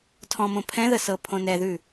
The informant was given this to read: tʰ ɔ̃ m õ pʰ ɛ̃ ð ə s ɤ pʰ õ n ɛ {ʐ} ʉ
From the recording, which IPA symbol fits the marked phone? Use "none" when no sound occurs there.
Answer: ð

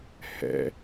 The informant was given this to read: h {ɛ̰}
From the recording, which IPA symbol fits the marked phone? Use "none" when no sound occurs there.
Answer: ɛ̰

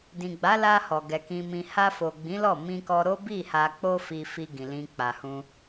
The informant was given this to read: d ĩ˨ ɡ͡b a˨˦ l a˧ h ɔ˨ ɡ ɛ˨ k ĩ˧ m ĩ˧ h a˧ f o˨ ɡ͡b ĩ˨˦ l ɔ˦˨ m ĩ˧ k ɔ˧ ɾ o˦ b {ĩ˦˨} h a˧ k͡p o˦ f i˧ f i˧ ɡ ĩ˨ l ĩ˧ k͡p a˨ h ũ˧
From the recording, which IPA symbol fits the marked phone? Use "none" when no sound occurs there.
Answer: i˦˨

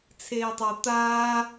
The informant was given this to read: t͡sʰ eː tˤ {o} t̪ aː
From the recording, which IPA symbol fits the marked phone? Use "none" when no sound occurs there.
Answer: o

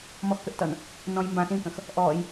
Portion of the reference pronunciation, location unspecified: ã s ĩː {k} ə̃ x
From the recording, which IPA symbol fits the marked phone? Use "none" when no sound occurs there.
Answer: k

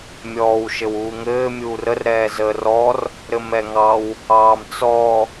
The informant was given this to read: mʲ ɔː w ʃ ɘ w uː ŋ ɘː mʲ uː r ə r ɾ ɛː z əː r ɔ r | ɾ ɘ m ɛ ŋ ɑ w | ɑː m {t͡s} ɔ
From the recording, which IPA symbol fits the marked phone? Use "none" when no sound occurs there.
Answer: t͡s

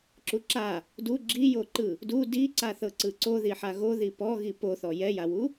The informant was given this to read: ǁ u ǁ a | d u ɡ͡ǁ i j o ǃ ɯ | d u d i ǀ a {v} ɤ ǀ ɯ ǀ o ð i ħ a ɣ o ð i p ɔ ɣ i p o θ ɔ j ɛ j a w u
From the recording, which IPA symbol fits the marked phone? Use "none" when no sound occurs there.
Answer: θ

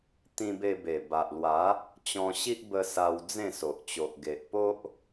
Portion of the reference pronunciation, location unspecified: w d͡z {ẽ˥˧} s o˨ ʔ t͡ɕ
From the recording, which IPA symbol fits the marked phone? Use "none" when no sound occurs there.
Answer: ẽ˥˧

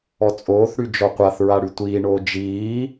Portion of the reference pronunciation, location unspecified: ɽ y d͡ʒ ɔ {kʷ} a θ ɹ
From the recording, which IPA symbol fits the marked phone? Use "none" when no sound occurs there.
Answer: qʷ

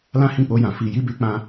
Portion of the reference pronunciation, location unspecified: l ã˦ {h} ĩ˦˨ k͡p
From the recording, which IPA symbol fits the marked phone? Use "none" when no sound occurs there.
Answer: h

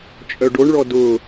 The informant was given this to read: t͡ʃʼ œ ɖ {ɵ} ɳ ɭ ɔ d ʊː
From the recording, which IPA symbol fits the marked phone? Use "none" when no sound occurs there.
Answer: o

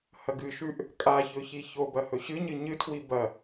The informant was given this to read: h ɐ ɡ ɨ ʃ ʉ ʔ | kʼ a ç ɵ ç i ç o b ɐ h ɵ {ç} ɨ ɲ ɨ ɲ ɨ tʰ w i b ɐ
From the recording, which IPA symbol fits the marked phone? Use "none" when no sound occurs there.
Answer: ɕ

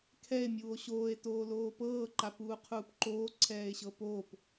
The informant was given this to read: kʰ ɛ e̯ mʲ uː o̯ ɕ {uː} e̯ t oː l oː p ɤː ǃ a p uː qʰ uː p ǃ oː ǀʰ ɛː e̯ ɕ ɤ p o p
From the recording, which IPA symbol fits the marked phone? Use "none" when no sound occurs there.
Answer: oː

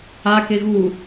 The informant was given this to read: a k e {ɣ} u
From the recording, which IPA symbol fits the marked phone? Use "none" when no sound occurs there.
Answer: ɣ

